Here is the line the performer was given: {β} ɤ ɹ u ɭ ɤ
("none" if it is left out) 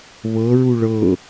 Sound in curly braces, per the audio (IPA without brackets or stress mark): β